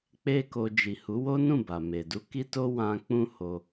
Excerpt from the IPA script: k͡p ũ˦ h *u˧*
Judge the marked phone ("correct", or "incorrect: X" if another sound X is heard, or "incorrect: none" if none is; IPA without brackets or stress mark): incorrect: o˧